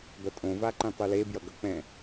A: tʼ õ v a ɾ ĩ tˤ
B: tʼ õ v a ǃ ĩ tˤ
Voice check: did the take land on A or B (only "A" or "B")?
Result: B